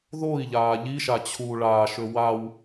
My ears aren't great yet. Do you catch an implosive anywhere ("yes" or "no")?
no